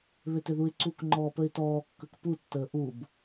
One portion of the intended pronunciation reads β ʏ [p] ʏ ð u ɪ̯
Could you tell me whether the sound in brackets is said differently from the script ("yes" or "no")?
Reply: yes